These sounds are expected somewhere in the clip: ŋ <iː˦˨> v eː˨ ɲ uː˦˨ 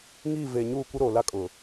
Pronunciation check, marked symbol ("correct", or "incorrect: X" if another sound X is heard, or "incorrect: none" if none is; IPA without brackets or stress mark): correct